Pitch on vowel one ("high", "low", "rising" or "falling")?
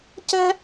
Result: high